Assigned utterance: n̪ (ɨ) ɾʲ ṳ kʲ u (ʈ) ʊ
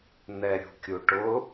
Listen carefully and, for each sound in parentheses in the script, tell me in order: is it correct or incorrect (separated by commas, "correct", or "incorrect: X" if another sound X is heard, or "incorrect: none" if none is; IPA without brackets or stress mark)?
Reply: incorrect: ɛ, correct